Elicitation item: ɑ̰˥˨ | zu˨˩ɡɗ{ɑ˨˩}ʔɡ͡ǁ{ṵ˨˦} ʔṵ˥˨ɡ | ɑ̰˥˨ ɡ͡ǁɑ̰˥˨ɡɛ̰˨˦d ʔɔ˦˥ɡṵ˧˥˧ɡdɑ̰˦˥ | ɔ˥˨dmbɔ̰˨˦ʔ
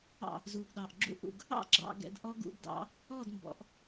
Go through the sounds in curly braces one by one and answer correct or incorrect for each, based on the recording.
correct, incorrect: ṵ˥˨

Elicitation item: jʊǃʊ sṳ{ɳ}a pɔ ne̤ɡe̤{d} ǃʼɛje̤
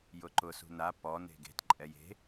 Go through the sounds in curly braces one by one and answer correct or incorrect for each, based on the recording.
incorrect: n, incorrect: t

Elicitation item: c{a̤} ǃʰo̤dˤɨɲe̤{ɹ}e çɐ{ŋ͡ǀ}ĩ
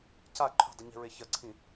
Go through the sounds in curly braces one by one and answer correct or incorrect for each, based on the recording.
incorrect: a, correct, incorrect: ǀʰ

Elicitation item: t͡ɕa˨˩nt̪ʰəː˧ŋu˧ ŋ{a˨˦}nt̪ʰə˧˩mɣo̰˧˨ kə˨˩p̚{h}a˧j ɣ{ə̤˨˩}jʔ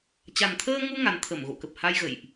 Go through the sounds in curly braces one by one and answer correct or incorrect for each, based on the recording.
correct, correct, incorrect: ə̰˧˨

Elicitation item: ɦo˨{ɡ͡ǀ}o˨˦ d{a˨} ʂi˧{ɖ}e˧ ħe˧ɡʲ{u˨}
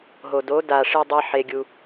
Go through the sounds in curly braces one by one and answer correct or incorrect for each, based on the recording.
incorrect: d, correct, incorrect: dˤ, incorrect: u˧

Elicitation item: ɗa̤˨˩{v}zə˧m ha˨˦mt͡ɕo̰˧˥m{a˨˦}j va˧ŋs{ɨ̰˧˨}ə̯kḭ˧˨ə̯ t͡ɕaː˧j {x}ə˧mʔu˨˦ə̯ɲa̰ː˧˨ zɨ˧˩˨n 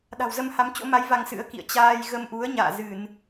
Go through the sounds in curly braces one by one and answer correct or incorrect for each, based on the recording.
incorrect: w, correct, incorrect: ɨ̰˧˥, incorrect: ɣ

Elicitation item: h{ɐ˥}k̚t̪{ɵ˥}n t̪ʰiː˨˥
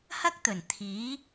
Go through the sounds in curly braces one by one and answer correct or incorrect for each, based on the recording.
correct, incorrect: ɵ˨˩

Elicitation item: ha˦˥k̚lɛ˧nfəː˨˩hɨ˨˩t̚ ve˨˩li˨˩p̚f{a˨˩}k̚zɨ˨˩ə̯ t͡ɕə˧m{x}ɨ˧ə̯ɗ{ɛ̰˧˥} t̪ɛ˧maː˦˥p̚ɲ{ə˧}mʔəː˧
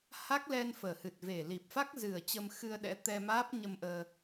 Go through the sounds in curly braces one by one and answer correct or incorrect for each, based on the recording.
incorrect: a˦˥, correct, correct, correct

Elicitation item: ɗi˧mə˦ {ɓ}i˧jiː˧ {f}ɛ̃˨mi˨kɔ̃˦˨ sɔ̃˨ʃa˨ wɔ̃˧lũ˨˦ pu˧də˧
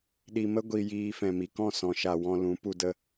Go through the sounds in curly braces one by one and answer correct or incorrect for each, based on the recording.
incorrect: ɡʷ, correct

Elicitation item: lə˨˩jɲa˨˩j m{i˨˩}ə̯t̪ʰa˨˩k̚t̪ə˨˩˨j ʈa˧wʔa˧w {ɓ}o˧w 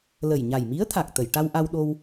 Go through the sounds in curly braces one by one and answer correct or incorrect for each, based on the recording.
incorrect: i˧˥, incorrect: ɗ

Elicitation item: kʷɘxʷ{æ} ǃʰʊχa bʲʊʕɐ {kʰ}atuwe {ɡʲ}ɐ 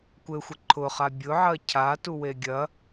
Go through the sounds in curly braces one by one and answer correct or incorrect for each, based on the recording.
incorrect: ə, incorrect: cʰ, correct

